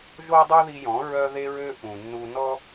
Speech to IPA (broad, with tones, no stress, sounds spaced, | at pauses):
ʒ o˦ dˤ u˦ ð i˧ j ɔ̃˨˦ ɹ œ˧ ð e˧ ɹ ø˧ ʔ ũ˨ nː u˧ n ɔ˦